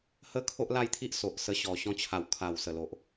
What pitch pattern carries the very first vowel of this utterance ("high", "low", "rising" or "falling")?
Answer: high